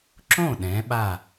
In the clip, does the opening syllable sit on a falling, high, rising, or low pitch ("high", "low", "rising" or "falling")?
falling